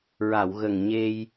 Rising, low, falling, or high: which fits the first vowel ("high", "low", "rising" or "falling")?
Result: low